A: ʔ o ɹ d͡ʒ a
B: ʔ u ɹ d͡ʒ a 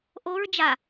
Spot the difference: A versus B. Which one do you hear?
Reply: A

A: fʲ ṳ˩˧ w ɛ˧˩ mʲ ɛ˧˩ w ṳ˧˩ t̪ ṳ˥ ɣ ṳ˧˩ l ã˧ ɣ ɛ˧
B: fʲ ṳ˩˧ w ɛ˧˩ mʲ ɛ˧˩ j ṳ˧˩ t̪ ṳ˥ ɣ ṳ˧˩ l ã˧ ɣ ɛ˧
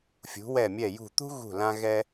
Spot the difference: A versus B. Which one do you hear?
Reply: B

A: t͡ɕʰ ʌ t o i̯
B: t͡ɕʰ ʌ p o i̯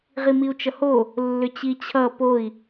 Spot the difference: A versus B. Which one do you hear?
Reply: B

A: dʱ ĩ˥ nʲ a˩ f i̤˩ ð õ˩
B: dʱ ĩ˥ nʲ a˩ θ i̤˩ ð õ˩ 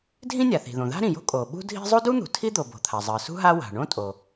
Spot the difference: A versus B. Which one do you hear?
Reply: B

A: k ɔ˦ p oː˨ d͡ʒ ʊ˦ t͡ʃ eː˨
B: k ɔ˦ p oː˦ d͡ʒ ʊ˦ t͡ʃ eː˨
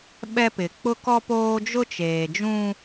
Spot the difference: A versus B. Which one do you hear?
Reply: B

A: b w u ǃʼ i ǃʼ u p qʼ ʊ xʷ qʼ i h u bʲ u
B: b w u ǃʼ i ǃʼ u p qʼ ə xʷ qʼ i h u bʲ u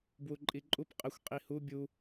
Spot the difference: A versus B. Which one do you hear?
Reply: B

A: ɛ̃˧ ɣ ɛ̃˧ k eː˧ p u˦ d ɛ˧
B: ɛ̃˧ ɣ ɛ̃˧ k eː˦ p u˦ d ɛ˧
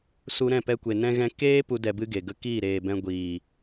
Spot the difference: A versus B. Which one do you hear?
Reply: B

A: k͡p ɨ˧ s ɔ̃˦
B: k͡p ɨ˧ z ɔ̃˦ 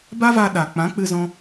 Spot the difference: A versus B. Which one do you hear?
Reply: B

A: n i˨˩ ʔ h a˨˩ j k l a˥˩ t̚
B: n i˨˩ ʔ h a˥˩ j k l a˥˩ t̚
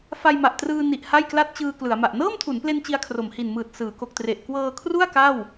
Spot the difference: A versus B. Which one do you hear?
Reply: B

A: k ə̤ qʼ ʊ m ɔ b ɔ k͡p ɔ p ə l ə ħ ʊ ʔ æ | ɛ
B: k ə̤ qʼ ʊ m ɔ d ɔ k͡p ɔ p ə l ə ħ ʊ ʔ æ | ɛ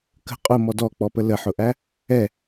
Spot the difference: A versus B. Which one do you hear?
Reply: B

